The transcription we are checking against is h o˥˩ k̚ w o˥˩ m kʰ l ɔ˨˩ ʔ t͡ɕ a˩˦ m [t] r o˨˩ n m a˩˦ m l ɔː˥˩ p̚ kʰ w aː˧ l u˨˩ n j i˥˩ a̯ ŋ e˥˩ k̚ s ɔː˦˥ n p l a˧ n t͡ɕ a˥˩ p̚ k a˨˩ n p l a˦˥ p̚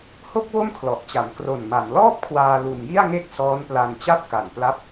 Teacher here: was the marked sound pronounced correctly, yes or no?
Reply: no